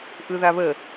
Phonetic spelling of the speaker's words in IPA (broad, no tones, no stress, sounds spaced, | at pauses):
ʔ ɯ ð a β ə